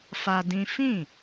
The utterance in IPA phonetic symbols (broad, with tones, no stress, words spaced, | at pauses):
fa˦dĩ˦ fĩ˦˨